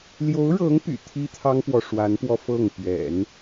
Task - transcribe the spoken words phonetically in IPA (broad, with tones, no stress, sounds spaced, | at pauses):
l j o˧˥ ʊ̯ ɻ ɤ˧˥ ŋ p y̰˨˩ t̪ʰ i˥ t̪ʰ ɑ˥ ŋ p w ɔ˨ ʂ w a˧˥ n p w ɔ˧ f ɤ˥˩ ŋ p ɥ ɛ̰˨˩˦ n